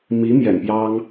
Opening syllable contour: rising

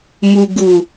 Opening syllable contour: low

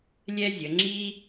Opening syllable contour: high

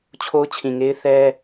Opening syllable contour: high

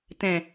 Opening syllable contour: low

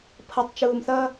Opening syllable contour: low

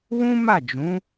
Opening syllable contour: high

